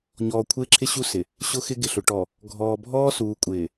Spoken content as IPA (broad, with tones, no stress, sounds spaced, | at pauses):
ɲ ɔː˨ kʷʰ ɪː˦ ǁʰ ɪ˦ ɕ u˦ s ɪ˨ | ɕ ʊ˦ x ɪ˦ ɡ ɪ˨ ɬ ʊ˨ ʈ ɔ˨ | ɡʱ ɔː˨ bʱ ɔː˦ s uː˨ kʷʼ ɪː˨